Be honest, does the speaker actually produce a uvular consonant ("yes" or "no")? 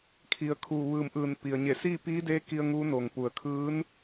no